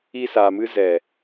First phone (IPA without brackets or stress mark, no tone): i